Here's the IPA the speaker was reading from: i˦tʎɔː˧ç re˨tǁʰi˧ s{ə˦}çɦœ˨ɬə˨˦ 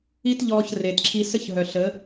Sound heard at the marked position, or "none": ə˦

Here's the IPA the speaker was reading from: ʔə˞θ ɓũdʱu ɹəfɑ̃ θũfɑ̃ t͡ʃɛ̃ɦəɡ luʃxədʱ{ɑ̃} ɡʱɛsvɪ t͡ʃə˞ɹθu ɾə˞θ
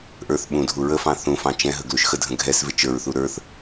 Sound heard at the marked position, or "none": ə̃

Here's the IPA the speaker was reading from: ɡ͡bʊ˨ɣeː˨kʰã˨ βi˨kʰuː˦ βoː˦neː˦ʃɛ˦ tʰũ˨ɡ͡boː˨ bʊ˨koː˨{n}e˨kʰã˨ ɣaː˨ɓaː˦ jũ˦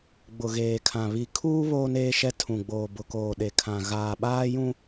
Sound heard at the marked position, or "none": ɗ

